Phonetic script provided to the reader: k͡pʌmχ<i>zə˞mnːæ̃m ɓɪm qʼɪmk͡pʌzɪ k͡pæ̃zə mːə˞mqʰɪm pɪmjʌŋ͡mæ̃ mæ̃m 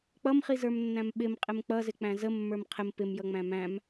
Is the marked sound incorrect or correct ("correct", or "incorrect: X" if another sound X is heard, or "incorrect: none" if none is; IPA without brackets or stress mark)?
correct